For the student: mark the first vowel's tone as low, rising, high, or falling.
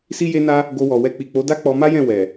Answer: high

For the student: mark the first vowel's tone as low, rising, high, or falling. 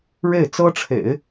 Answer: falling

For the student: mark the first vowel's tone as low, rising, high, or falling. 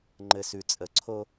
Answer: low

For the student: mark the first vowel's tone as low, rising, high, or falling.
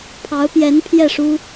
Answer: rising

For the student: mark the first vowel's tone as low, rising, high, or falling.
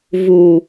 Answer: low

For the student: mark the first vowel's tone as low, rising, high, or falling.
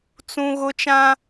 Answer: high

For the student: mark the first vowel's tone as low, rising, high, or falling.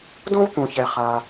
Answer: high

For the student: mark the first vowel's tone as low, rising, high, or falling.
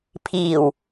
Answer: low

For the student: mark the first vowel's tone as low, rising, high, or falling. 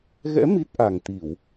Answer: rising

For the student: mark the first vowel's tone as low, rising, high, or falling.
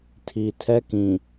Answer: low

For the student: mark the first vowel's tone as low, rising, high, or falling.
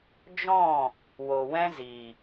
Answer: falling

